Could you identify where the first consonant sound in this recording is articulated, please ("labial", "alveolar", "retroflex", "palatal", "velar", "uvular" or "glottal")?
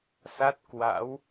alveolar